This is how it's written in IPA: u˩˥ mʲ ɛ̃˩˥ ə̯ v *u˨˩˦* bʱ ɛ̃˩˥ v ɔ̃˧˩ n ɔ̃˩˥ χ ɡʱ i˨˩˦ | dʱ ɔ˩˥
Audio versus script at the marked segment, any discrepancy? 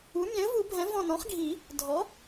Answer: no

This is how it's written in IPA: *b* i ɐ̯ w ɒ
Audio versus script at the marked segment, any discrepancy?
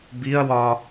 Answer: no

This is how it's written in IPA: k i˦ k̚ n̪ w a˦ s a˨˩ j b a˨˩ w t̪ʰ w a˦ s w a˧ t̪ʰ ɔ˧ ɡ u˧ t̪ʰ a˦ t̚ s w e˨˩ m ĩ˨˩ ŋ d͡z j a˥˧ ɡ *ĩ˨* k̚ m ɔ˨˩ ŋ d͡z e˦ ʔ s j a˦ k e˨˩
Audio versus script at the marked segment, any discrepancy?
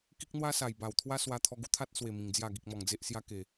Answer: yes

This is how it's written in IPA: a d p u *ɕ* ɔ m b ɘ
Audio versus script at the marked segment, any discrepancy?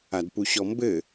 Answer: no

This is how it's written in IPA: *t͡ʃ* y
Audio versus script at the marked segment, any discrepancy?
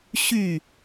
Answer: yes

